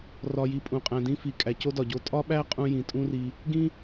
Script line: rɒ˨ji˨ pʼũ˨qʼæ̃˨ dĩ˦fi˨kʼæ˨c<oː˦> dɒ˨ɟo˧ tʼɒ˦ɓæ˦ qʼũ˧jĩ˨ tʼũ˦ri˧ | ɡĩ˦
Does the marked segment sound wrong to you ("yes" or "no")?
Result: yes